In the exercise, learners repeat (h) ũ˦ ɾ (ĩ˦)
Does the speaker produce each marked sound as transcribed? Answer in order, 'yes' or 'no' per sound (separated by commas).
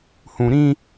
yes, yes